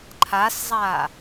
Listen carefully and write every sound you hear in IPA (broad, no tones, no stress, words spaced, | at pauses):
ǃʰaszˤa